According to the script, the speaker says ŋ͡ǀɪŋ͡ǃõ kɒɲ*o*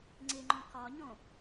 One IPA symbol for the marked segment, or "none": õ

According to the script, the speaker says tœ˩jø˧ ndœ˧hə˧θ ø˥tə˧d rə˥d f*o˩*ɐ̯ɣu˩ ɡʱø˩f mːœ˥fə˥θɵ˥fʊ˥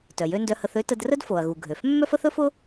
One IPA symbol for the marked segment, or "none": o˩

